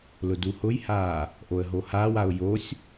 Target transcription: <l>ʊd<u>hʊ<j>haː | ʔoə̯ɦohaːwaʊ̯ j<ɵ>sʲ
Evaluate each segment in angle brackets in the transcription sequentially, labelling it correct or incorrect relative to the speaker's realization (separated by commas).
correct, correct, correct, incorrect